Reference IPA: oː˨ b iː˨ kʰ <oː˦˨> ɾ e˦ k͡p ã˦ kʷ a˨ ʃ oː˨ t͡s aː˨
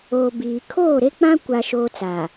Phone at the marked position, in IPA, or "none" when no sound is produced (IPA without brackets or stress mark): oː˦˨